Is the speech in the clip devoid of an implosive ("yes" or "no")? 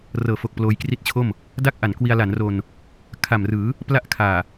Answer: yes